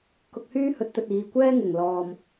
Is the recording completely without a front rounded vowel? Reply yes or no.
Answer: no